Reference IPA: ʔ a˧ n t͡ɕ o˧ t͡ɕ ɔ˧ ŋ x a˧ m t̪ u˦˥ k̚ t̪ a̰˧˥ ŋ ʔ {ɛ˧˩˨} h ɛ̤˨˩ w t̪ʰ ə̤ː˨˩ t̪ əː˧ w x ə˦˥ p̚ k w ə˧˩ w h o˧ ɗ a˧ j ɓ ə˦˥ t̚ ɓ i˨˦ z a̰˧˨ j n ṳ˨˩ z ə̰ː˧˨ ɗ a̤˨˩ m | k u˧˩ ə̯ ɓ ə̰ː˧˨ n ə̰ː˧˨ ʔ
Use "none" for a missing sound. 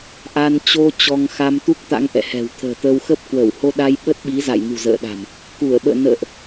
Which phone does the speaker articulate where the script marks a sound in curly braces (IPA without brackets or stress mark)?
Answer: ɛ̰˧˨